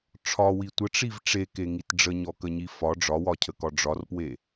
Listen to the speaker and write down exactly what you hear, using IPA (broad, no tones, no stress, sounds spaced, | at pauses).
ʈ͡ʂʰ ɒ w i tʷ ə ʈ͡ʂ i v ʈ͡ʂ e k e ŋ i t ɖ͡ʐ ə ɲ ɔ k ə ɲ i f ɒ ɖ͡ʐ ɒ w ɒ cʰ ə k ɒ ɖ͡ʐ ɒ r p w e